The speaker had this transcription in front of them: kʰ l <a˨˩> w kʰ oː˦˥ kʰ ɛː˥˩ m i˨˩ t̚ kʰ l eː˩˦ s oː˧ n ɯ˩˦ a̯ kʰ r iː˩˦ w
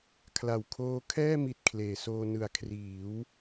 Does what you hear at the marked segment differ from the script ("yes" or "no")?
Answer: no